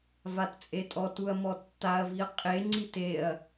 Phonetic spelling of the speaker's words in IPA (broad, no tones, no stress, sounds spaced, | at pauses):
v a t t͡sʼ e tʼ ɔ t u ɐ̯ m ɔ tː a ɐ̯ v i ɐ̯ qʼ e ŋ͡ǀ i t e ɐ̯